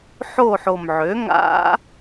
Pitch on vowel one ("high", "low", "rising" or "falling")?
falling